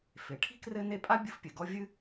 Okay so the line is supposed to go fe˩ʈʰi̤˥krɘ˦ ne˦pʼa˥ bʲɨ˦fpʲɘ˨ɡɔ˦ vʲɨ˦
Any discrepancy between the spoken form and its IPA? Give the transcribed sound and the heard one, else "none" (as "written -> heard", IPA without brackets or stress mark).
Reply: none